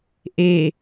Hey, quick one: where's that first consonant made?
throat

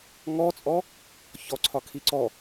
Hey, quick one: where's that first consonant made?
velum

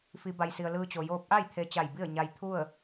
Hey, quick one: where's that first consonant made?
lips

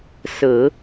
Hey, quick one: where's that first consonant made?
tongue tip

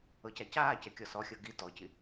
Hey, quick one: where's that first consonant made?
palate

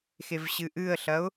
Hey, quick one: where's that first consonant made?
velum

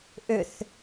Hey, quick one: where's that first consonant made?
throat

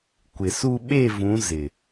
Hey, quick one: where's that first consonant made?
velum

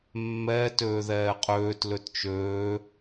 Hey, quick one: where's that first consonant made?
lips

